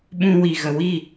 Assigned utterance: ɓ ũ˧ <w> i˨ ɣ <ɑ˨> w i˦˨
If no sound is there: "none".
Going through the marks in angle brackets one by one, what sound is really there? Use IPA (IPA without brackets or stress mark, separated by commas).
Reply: w, ə˨